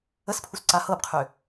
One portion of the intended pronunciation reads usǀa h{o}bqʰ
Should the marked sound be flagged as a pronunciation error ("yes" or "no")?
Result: yes